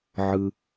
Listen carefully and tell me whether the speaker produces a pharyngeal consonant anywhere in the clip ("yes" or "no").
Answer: yes